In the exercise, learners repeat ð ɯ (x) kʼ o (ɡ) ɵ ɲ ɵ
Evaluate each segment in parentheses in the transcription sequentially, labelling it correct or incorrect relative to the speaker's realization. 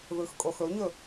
correct, incorrect

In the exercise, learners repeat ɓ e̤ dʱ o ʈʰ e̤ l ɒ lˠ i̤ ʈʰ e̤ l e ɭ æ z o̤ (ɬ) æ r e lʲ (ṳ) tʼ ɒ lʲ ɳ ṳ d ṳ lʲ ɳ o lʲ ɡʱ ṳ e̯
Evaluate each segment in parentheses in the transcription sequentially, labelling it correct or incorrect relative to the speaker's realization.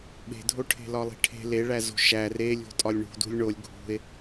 incorrect, incorrect

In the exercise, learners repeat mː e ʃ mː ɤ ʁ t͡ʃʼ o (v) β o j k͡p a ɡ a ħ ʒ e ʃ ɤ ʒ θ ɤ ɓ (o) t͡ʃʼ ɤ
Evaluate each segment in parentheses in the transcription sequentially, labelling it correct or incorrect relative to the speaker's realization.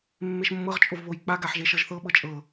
correct, incorrect

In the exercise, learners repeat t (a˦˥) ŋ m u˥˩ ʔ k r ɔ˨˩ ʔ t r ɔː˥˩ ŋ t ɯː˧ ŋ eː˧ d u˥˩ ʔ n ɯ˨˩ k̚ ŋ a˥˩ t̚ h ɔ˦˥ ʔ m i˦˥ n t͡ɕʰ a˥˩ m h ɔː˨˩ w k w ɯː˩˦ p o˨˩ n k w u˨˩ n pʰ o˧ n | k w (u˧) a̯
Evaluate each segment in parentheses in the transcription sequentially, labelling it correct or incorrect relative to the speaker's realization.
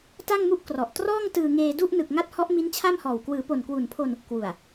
incorrect, incorrect

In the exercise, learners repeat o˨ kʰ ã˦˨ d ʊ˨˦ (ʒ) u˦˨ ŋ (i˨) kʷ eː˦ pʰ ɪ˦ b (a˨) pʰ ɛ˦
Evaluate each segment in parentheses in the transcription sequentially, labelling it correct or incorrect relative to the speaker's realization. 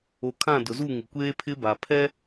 incorrect, incorrect, correct

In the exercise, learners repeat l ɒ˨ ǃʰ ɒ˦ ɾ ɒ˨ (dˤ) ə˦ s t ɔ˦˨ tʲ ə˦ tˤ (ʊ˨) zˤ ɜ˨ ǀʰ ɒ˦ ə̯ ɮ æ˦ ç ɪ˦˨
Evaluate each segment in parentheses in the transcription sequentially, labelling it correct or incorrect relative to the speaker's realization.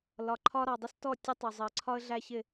correct, correct

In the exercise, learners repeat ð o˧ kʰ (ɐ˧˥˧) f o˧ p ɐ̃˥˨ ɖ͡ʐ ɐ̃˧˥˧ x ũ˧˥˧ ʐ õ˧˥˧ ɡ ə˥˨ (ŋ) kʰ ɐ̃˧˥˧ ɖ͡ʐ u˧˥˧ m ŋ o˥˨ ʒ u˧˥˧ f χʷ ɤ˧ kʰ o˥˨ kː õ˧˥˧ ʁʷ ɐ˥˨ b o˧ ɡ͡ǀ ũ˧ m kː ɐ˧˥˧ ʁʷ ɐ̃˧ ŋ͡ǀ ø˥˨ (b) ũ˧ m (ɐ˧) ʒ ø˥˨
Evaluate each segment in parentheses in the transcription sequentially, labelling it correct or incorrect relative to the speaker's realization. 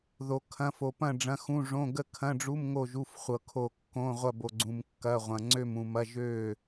incorrect, incorrect, incorrect, incorrect

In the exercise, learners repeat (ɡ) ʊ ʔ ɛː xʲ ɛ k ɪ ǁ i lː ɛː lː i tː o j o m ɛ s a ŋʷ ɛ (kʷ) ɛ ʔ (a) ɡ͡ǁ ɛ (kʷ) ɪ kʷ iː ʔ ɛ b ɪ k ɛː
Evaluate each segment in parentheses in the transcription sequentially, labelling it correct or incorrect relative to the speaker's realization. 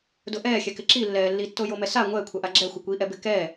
incorrect, incorrect, correct, incorrect

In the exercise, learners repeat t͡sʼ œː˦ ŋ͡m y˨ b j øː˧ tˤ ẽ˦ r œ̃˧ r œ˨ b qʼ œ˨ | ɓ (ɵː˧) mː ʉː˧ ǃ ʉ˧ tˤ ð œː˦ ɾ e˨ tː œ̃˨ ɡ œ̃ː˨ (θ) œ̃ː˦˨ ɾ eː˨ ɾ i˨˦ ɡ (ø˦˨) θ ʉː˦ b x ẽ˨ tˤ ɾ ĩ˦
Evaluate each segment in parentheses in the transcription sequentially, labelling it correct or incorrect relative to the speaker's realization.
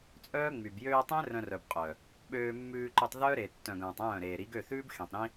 incorrect, incorrect, correct

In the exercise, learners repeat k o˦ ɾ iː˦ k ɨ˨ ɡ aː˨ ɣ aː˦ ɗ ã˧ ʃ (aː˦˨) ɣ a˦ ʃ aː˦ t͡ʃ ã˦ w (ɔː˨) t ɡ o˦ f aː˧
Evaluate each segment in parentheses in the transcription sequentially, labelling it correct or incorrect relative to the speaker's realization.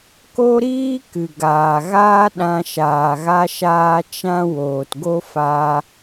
incorrect, incorrect

